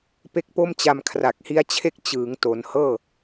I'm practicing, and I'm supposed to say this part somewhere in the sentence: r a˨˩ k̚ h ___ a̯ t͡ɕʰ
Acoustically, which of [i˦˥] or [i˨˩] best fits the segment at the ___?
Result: i˦˥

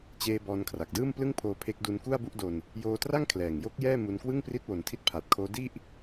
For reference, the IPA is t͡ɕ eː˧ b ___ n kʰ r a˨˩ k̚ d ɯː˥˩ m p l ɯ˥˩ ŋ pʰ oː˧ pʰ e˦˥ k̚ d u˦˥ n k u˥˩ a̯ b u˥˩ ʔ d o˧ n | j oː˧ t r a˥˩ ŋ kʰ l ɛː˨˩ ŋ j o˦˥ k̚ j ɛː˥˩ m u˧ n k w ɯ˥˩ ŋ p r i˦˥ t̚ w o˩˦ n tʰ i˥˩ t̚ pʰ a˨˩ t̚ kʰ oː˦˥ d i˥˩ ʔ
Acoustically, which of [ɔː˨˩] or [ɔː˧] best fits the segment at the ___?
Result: ɔː˧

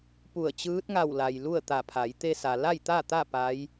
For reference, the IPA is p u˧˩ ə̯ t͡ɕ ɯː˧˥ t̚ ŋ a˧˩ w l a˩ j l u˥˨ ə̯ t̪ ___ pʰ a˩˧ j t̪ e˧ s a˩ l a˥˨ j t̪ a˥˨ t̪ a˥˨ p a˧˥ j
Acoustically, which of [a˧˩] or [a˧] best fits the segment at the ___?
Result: a˧˩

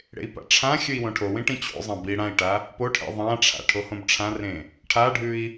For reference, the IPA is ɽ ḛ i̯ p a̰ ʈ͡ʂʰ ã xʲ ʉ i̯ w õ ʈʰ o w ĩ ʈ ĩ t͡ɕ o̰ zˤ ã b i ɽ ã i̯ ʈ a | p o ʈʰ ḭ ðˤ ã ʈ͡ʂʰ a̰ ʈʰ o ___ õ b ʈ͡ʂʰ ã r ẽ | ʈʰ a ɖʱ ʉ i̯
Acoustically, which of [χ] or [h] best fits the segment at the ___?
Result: h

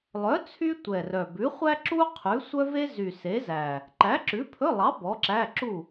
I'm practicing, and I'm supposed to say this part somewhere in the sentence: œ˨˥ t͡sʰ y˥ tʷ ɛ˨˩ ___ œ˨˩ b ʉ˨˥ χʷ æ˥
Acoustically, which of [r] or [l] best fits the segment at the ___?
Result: r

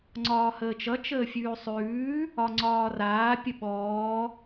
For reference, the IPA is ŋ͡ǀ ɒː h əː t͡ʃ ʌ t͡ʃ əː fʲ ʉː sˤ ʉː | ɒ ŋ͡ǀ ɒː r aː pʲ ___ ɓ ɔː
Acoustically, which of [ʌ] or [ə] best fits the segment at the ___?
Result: ə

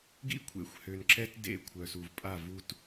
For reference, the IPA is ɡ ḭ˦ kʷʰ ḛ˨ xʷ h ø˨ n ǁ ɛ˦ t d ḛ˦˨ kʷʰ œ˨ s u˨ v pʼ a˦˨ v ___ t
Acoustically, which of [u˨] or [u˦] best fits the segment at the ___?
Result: u˦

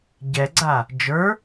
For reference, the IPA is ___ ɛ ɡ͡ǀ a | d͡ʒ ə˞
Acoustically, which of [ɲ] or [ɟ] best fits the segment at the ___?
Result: ɟ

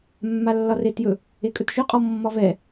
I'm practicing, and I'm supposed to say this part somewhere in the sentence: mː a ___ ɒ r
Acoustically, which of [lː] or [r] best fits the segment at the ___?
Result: lː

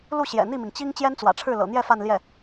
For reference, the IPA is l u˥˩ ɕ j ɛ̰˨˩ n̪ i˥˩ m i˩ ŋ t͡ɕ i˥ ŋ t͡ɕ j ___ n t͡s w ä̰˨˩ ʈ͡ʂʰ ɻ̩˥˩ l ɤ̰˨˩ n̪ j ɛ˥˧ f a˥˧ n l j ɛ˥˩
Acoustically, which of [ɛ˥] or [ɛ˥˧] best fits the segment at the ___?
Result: ɛ˥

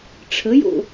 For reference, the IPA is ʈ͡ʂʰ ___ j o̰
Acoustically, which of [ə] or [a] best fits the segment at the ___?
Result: ə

